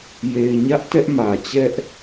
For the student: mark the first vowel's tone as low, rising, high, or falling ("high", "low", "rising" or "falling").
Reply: low